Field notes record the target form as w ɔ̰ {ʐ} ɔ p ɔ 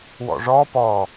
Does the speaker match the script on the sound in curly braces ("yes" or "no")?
yes